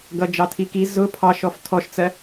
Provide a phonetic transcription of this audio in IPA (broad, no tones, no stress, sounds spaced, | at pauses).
ɡ ʌ d͡ʒ ɑ tʰ i k i z ʊ pʰ ɑ ʃ ɔ f tʰ ɔ ʃ t͡s ɜ